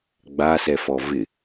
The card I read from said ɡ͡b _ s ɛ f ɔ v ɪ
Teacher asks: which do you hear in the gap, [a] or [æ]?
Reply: a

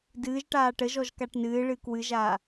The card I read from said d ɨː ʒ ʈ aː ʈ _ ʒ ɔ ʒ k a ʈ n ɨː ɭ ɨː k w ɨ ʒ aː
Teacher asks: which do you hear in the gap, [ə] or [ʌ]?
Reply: ə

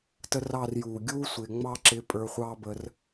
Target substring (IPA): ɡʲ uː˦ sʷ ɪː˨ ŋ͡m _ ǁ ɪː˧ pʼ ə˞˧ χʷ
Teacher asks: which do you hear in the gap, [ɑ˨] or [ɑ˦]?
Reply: ɑ˦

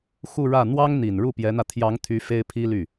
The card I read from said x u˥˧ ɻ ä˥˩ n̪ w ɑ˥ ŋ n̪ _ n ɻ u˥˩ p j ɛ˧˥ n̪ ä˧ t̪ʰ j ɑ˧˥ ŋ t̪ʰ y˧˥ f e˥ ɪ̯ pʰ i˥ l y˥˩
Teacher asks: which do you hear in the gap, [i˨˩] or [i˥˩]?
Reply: i˨˩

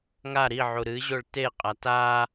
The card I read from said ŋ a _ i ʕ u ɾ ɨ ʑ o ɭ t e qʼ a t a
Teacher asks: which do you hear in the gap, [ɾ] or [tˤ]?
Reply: ɾ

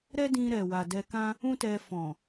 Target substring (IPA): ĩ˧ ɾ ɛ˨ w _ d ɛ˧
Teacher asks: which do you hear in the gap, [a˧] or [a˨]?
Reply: a˨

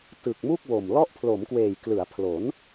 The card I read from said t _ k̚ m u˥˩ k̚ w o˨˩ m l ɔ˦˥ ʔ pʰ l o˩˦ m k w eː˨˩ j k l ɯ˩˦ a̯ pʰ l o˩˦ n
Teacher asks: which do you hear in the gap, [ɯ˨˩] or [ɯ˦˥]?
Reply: ɯ˨˩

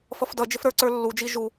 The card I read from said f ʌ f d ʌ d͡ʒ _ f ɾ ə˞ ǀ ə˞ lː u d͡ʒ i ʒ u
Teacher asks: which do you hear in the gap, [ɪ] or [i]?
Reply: ɪ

